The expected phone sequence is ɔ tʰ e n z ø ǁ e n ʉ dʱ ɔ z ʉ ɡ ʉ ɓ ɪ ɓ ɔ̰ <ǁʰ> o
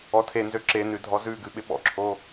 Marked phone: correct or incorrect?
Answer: correct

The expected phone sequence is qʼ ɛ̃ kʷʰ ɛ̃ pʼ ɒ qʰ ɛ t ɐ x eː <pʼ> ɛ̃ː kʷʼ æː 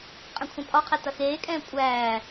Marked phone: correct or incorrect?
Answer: incorrect: kʼ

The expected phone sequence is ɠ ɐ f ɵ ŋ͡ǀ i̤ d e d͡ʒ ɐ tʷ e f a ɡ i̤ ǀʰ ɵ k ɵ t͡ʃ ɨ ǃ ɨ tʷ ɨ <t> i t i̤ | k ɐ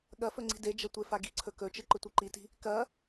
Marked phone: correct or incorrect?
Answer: incorrect: ǃ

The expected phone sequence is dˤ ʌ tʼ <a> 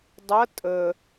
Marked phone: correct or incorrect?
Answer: incorrect: ə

